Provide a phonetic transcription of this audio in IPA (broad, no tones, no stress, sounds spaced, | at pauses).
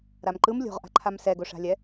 ɾ a m ǃ ɯ m lʲ o̤ ʁ ʔ a̤ ǃʰ a m s ɛ ɡ o ʂ a̤ lʲ ɛ